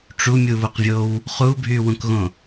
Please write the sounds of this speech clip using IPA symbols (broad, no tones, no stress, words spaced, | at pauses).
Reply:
ʈ͡ʂumʲuβuqvʲow | χubʱywũkɣõ